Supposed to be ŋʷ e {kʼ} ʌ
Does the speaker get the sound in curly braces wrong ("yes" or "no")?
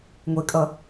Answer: no